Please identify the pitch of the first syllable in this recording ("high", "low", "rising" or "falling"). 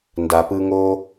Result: low